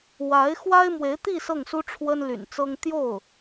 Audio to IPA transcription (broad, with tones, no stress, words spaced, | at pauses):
wa˧˥ɪ̯ xwa˥ɪ̯mwe˧˥ɪ̯t̪i˥˧ sɤ˥˩ŋsu˥ ʈ͡ʂʰwə˥nly̰˨˩nt͡sɤ˥ŋ t̪jo˥˩ʊ̯